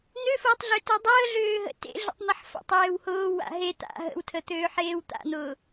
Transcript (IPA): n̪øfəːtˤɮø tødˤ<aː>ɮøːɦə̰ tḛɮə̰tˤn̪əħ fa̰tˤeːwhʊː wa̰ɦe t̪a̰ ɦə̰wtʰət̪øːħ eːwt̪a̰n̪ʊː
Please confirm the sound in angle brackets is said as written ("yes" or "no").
no